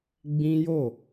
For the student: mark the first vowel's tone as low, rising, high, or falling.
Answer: high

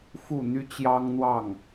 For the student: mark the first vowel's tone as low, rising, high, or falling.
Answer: falling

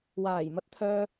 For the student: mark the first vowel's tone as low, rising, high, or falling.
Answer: low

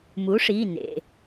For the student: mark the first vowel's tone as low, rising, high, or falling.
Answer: rising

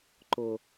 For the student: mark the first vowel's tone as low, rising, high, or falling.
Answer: low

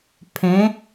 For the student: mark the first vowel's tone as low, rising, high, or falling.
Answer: rising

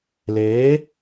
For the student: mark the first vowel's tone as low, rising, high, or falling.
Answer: rising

